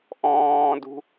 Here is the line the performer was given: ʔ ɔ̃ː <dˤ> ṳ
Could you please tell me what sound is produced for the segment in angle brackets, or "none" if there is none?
d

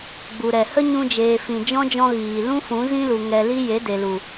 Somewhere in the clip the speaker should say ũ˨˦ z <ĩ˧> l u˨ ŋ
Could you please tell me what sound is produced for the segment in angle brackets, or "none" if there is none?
ĩ˦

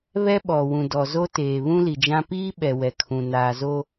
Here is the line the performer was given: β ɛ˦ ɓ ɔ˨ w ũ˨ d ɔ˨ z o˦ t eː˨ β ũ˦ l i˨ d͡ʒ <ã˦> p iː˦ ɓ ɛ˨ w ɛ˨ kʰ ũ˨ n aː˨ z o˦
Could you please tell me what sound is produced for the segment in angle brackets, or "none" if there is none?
ã˦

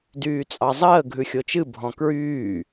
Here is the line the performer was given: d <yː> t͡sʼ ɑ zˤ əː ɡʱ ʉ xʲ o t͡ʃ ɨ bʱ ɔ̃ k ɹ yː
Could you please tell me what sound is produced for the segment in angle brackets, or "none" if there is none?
yː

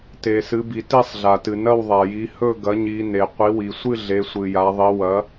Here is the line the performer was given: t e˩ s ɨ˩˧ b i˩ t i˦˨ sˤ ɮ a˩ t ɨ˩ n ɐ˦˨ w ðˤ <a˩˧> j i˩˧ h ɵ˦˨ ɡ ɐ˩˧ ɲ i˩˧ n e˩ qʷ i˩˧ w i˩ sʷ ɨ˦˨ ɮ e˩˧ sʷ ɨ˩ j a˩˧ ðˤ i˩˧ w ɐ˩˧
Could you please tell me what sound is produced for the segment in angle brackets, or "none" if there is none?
a˩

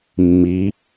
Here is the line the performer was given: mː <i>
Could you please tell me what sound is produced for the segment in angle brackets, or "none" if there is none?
i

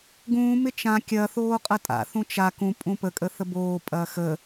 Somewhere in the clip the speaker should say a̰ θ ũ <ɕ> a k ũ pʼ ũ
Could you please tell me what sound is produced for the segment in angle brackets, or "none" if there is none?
t͡ʃ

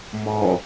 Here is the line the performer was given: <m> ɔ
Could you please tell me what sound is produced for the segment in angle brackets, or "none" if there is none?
m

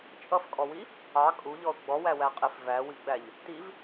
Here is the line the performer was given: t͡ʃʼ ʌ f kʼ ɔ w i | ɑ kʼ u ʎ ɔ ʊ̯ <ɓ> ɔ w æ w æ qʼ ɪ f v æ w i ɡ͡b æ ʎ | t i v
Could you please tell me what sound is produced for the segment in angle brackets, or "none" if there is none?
ɡ͡b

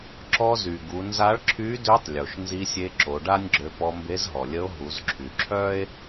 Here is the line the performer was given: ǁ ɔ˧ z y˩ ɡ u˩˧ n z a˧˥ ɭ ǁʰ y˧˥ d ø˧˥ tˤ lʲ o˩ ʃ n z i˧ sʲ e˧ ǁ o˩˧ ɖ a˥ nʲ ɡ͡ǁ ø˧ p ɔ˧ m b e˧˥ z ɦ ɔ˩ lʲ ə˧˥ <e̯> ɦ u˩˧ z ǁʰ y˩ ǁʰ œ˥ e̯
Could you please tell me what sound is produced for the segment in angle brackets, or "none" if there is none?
o̯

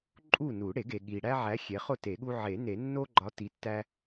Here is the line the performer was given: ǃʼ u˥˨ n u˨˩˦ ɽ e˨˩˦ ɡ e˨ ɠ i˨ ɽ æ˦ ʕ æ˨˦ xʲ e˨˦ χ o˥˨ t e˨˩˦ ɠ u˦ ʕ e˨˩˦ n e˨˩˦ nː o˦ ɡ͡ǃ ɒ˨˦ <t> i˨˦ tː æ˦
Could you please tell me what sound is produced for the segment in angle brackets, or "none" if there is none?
t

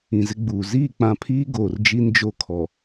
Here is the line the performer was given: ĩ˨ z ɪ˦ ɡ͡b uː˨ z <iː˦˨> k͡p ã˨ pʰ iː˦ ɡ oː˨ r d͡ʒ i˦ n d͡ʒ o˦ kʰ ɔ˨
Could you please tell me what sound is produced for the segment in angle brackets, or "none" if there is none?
iː˦˨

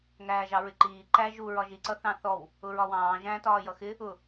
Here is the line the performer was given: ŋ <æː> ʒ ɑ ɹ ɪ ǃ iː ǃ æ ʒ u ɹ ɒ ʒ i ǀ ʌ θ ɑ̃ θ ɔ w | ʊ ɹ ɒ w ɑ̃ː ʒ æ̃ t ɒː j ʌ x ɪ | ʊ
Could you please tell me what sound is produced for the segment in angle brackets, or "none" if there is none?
æː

